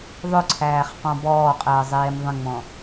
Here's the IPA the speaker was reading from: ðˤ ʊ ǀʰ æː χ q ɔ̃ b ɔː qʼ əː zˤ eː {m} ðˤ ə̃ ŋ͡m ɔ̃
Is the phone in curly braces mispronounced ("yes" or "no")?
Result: no